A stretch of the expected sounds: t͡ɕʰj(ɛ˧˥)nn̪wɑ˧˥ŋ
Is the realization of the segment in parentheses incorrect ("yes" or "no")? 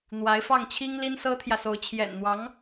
yes